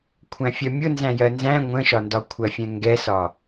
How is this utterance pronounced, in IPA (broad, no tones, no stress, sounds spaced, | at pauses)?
kʷʰ æ̃ fʲ ɜ mʲ ʊ n z æ̃ j ɜ n z æ̃ ŋʷ ə̃ ʃ ɒ n d ɒ kʷʰ ɜ fʲ ɛ̃ ŋ ɡ ɛ s ɒ